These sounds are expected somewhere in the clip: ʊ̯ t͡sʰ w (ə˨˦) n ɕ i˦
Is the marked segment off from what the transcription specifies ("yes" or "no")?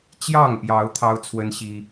yes